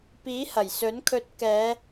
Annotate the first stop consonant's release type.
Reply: plain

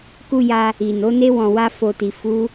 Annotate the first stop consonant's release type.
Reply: plain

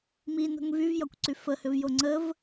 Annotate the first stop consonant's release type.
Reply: plain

